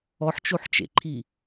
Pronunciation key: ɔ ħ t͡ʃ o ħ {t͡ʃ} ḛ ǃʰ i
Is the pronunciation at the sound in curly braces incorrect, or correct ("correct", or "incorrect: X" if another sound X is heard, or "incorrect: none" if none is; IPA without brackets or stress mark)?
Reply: correct